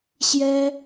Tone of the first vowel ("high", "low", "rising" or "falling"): high